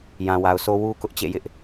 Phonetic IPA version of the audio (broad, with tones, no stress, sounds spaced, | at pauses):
j ã˨ w a˨ ʊ̯ sʰ o˦ w u˦ k ʊ˦ ʔ t͡ɕ ḛ˦˨ j ɪ˦ ʔ